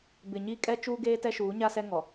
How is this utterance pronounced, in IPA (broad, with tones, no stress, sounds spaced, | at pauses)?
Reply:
b ɪ˨ ɲ i˦˨ kʼ ɛ˦ t͡ʃ uː˦ ɡ eː˦ t ɛ˦ ʃ uː˨˦ ɲ a˦ s ɛ˦ ŋ ɔ˨